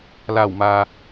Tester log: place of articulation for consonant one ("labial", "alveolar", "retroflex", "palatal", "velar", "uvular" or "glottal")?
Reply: alveolar